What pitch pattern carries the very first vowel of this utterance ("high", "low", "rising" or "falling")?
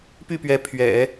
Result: falling